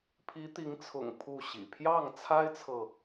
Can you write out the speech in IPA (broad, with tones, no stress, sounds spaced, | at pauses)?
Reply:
pʰ i˧˥ t̪ i˧˥ ŋ t͡sʰ ʊ̰˨˩ ŋ pʰ u˥˩ ɕ ḭ˨˩ pʰ j ɑ˥˩ ŋ t͡sʰ a˥ ɪ̯ t͡sʰ ɤ˨